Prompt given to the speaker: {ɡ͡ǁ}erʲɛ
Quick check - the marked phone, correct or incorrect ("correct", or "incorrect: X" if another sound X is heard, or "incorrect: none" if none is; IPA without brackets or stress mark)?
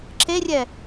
incorrect: ǁ